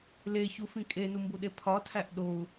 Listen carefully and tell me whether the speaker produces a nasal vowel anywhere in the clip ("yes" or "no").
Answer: yes